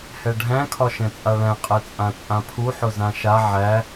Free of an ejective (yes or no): no